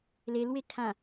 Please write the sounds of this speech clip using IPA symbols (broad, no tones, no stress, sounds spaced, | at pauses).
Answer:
l e l w e kʰ ã